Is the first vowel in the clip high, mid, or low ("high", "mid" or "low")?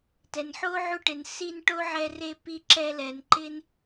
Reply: mid